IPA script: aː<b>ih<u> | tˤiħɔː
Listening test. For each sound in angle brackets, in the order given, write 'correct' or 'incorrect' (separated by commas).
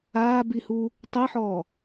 correct, correct